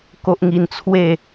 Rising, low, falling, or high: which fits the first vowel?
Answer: high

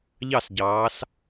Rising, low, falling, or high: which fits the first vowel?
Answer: falling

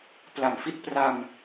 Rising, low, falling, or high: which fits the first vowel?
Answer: low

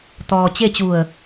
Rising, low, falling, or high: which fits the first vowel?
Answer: low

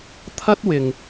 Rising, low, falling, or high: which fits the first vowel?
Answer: high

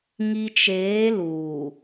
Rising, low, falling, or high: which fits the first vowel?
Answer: low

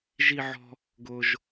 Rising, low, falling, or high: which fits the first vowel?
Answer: high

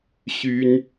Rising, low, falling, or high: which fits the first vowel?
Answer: high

